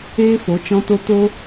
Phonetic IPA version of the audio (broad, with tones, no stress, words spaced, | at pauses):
eː˦fo˨˦ t͡ʃɔ̃˦to˦ to˦